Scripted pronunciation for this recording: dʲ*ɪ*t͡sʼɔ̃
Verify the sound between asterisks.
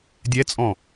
incorrect: ɛ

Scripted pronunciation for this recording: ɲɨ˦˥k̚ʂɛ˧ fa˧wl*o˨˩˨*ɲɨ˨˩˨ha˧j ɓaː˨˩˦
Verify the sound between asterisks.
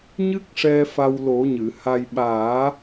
incorrect: o˨˩˦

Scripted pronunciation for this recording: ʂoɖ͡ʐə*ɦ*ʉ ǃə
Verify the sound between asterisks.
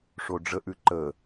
incorrect: ʔ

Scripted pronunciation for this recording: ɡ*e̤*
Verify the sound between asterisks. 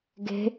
correct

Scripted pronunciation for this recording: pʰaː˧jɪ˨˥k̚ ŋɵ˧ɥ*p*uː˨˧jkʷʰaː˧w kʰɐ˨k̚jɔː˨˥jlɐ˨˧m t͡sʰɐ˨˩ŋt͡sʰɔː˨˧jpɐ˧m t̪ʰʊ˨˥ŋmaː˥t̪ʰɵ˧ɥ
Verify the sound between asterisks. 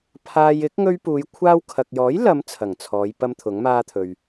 correct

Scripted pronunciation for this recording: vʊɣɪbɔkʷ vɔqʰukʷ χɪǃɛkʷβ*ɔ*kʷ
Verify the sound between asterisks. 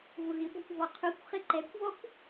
correct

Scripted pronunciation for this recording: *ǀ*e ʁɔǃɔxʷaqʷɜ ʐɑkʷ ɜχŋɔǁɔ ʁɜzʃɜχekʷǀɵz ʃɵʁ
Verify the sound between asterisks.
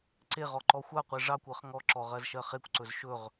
correct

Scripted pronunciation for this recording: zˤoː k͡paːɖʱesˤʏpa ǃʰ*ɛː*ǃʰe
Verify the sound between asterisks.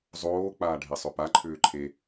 incorrect: ʏː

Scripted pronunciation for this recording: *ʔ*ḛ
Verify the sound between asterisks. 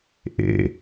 correct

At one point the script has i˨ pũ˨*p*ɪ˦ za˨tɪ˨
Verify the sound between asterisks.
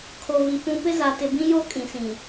correct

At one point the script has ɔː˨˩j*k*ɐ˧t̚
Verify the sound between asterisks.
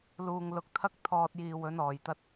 incorrect: t̪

